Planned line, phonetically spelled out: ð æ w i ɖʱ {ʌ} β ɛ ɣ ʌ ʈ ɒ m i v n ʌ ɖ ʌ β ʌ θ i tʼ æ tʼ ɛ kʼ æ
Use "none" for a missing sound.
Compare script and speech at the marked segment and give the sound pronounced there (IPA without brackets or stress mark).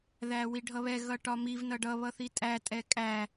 ʌ